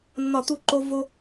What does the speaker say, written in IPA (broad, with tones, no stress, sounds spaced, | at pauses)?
nː ɒ˧˩˧ t̪ u˦˨ ǃ o˦ v o˦